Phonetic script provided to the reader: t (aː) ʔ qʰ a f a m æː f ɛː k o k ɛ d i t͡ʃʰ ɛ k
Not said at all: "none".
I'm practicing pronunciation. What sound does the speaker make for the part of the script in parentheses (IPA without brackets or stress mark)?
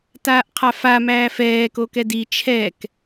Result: aː